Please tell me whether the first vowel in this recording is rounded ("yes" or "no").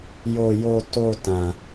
yes